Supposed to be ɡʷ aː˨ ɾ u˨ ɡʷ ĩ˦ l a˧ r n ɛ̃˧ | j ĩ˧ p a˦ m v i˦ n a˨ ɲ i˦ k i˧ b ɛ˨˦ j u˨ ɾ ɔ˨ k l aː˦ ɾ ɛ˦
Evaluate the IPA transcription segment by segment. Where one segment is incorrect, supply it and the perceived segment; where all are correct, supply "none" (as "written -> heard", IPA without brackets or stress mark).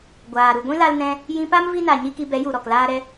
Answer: r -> l